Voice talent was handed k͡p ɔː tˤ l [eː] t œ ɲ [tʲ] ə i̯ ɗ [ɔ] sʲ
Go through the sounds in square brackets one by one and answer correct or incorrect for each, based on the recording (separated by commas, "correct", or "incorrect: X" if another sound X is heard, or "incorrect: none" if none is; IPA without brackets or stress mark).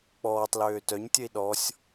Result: incorrect: øː, correct, correct